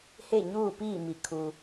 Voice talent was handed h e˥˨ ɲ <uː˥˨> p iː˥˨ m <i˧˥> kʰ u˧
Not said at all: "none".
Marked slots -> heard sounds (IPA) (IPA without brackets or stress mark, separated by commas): uː˥˨, i˧˩